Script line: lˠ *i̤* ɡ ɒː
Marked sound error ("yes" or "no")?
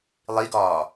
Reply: yes